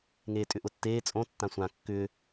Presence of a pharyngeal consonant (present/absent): absent